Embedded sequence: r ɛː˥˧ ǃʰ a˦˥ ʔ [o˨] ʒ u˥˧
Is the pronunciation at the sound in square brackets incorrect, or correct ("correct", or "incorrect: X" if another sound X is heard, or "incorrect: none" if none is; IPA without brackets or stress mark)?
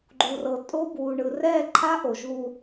correct